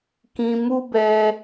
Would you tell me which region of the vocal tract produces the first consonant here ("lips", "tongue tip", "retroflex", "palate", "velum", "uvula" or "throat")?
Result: velum